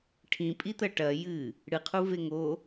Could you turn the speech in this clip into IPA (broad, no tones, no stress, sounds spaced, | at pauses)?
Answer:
ʈʰ ĩ pʼ i t̪ ɐ ʈ ɐ j ɨ | ɽ ɨ qʰ u v e ŋ o